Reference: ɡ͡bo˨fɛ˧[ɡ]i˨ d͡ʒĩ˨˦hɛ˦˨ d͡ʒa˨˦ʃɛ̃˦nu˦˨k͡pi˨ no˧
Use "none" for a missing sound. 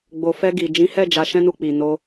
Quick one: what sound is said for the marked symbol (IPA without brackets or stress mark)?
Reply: ɡ